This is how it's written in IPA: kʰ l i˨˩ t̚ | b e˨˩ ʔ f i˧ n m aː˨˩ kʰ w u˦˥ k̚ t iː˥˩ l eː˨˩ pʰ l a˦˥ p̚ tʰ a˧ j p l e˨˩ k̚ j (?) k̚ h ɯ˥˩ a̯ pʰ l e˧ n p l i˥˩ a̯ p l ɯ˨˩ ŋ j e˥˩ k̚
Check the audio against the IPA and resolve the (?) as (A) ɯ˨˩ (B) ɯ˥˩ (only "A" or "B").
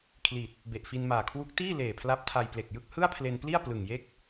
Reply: B